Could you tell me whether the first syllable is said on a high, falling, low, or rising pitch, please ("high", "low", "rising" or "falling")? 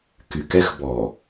low